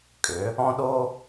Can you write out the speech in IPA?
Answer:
kʼ ʏ˩˧ | ɔ̃˦ ɗ o˦

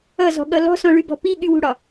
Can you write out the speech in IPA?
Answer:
ʌ z ɔ̤ ɠ ʌ l ɔ̤ s ɔ̃ ɭ y b ɔ̤ p i ɠ y w ṳ ɽ ɒ

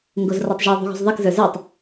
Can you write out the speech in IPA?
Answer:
ŋ ɡ o z r ɔ tˤ ʒ o ðˤ ṳ ɣ ṳ z ðˤ i k z ə˞ z ə˞ tˤ

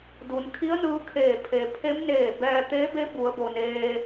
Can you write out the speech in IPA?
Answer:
d u˩˧ n kʰ i˧˥ ə̯ n ɯː˧˥ kʰ eː˧˩ pʰ e˩ pʰ e˧˥ m n eː˧˩ b ɛː˧ t̪ eː˧˥ b e˧˥ b u˩˧ ə̯ b o˩ n eː˧

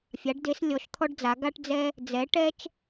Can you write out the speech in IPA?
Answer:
fʲ a˩˧ ɖ d e˩˧ s lʲ ɔ˩˧ ʃ t̪ʰ ɔ˧ ɖ d͡z a˩˧ ɡ a˧ ʈ d͡z ɛ˧ | d͡z ɛ˩˧ ʈ ɛ˧ t͡ʃ

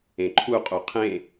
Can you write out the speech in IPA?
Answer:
ẽ ǃʰ u qʼ u qʰ ẽ

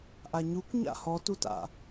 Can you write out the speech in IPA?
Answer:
ʔ a ɲ u kʷ ɲ a̰ h ɔ t u t a̰

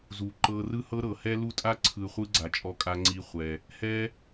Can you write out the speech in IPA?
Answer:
z u˨ ǃ ɤ˧ r ɯ˦ h ɤ˦ ɾ ɤ˨ h ɛ˦ l u˦ tʼ a˦ ǀʰ ɯ˨ χʷ ɯ˦ ɡ͡ǀ a˨ t͡ʃʼ ɔ˧ kʼ a˧ ŋ͡ǀ i˧ χʷ ɛ˨ | h ɛ˦

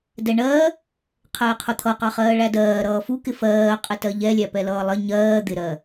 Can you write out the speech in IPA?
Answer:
d ɛ ɳ ɜ | qʰ ɛː qʰ ʊ t̪ʰ ʌ q ɑ χ ɜː ɭ æ d ɜː ɾ ʌː f u k ɪ f ɜː qʼ ɪ t ɜ ʎ ɛ lʲ æ p ɛ l ʌː lˠ ɪ ɲ ɜː d̪ ɪ ɾ ɜ

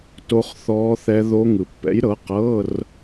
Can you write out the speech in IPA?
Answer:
t o˦˥ χ θ ɔː˦˥ θ ɛ˦˥ ð o˦˥ ŋ ɯ˨ pː ɛ̰˨˥ j ɾ ɤ˨˥ q ɤː˧˥˧ r

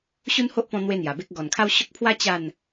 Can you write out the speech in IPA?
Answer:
ɕ u˦ n h o˦ ʔ p ɔ̃˧ n̪ w e˦ n̪ j a˨˩ b e˦ k̚ ɡ ɔ˨˩ n kʰ a˦ w ɕ o˦ k̚ pʰ w a˦ t͡ɕ a˥˧ n

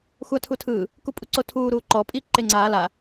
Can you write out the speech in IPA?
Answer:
xʷ a tʰ u tʰ ɯː | k u pʼ u ǀ o tʰ uː ɾ uː ǃ ɔ pʼ i ǃ e ŋ͡ǀ aː l a

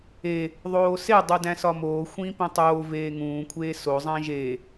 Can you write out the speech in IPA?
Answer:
e | ðˤ oː s e dˤ u d æ̃ s ɒ m oː xʷ ĩː p ĩ tˤ oː v eː ŋ ũː kʷʰ eː s o zˤ æ̃ ʒ e

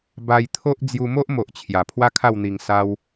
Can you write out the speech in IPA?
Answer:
b a˧ j t̪ʰ o˦ ʔ d͡z j u˧ m o˦ ʔ m o˨ ʔ t͡ɕʰ j a˨˩ pʰ w a˦ kʰ a˥˧ w n̪ i˧ ŋ s a˦ w

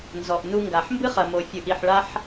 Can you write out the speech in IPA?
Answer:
n z ɔ˨ ʔ n u˧ ŋ ɡ a˨ ħ m b ɨ˦ χ ɐ˨ m o˨ fʲ ɨ˨ ʔ i˨ ħ ɭ a˧ ħ

